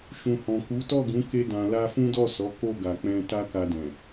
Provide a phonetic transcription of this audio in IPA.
ʃ ũ˨ h ɔ̃˨ k u˨˦ t ɔ˦˨ ɡ ũ˨˦ k e˧ d ã˨ l a˧ f ũ˦ d ɔ˦˨ s ɔ˨˦ k o˦˨ ɡ a˨ k͡p ɛ̃˧ t a˦ k a˧ d ɛ̃˨

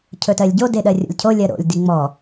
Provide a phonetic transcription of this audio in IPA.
cʰ ɵ t ɜ lʲ ɟ o d e ɗ ɜ rʲ o̰ lʲ cʰ o lʲ ɜ ɾ o̰ lʲ d i ŋ͡m ɔ

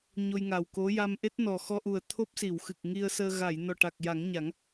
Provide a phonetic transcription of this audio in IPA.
ɲ o˧ j ŋ a˨˩ w k o˧˥ j a˧ m ʔ e˦˥ t̚ n ɔ˨˩ x ɔ˧ ʔ u˨˩ ə̯ t̪ʰ o˦˥ p̚ s i˨˩˨ w x ɨ˨˩ k̚ ŋ i˧ ə̯ s əː˧ ɣ a˨˩˨ j n ɔ˨˩ ʈ a˨˩ k̚ j a˨˩˦ ŋ ɲ a˨˩˦ ŋ

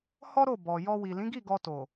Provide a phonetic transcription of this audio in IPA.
h ɔ˦ ɾ o˦˨ b ɔ˨ j ɔ˧ w i˨ l ĩ˨˦ ɡ i˦˨ ɡ ɔ˧ t o˨

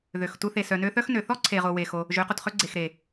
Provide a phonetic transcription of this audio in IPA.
ð ø˨ x t u˧ θ e˨ s œ˨ n ø˧ θ œ˦ x n ø˨ θ ɔ˦ ǀʰ e˨ ʁ o˨ w e˨ x o˧ | ʒ ø˨˦ q o˨ t χ ø˦ ɡ͡ǀ e˨ x ɾ e˨

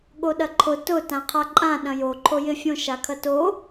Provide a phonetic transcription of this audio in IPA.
ɠ o ɗ ɐ ǃʰ ʊ t ʊ t ã qʰ a ǃʼ ã ɗ ɐ̃ j o ǃʰ o j ɪ fʲ õ ʃ a kʰ ɐ t o

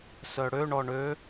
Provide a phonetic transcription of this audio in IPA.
s œ ɽ ø ɳ ɔ ɳ ø

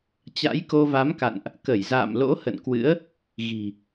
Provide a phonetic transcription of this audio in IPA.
t͡ɕ a̰˧˥ j k o˧ v a˨˦ m k a̰˧˨ n ʔ | k ə˧˩ j z a̰ː˧˨ m l o̰˧˥ h ə̰˧˨ n k w ɨ̰˧˥ ə̯ | ɣ i̤˨˩

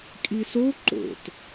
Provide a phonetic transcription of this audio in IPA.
kʼ i s o ǃ o̰ t

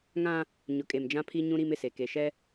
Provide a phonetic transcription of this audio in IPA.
ŋ ã˦ | ɲ ʊ˨ kʼ e˨ m d͡ʒ ã˦ pʰ i˦ ɲ ũ˦ ɾ i˦ m ɪ˨ s e˨ k e˨ ʃ ɛ˦

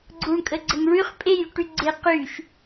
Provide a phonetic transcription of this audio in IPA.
ɡ͡ǀ u ɳ kʼ ə ɡ͡ǀ ə ŋ ɭ y χ pʼ e j y ʈ y ɡ͡ǀ e q y ʃ

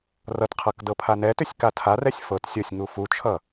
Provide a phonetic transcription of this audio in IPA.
r ʌ t qʰ ɤ k d ɤ pʰ a n ɛ t ʏ sʲ k a tʰ a r ɛ sʲ f ɤ t sʲ ɤ sʲ ŋ u f u t͡ʃʰ ʌ

